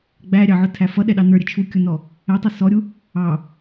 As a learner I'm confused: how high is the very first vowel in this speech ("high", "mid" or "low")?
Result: low